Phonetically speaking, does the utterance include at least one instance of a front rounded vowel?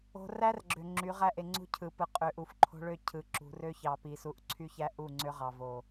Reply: yes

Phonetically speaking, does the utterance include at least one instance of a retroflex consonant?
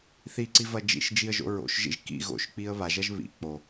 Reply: no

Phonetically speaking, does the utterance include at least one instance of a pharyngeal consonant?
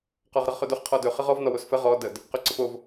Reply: no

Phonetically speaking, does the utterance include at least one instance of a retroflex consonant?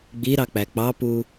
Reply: no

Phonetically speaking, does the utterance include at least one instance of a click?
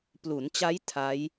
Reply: no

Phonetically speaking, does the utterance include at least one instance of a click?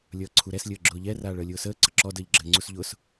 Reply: yes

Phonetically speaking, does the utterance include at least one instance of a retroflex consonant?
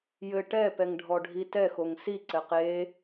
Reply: yes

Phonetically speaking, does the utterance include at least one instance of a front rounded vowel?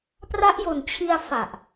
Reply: no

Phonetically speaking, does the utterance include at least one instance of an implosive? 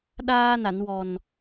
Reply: yes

